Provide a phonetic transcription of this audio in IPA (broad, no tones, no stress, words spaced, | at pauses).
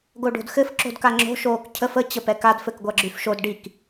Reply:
ɡoɖo̤dxɘf ǁo̤dkaŋ͡ǁo̤ ʃoːkcʰəf ə t͡ɕəpɛkad fɘkɡʷaɡ͡ǁyfʃod ɖik